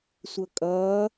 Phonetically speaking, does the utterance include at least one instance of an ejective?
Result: yes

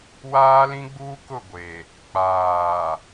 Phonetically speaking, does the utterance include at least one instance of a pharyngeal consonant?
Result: no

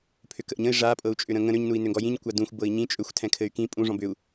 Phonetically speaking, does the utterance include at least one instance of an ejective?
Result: yes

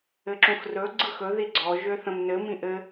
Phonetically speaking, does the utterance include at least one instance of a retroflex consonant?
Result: no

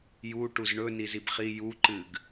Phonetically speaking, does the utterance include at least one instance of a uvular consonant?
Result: yes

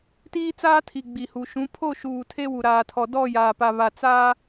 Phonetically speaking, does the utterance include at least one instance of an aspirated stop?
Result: yes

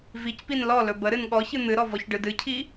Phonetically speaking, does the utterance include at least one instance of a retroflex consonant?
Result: yes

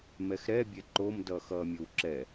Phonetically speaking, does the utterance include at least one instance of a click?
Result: yes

